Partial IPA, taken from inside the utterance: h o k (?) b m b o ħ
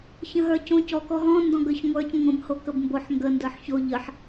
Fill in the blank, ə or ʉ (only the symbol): ə